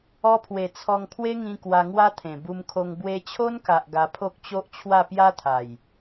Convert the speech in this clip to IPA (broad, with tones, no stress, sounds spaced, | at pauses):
ɔ˧ pʰ w e˨˩ t͡sʰ ɔ˧ ŋ pʰ w e˦ ŋ ĩ˧ k w a˧ ŋ w a˦ t̪ʰ ẽ˨˩ b u˧ m kʰ o˧ ŋ b w e˧ t͡ɕʰ o˦ n k a˨ ʔ ɡ a˧ pʰ o˦ k̚ t͡ɕ o˦ ʔ t͡ɕʰ w a˥˧ p j a˦ t̪ʰ a˨˩ j